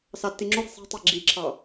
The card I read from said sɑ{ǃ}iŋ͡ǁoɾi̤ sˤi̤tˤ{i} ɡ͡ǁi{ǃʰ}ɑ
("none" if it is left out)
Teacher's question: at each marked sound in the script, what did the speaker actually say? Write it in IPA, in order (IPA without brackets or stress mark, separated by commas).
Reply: tː, i, ǁʰ